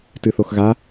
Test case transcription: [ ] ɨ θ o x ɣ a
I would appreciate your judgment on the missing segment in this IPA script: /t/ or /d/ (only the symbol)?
t